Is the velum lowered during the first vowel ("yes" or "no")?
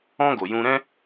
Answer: yes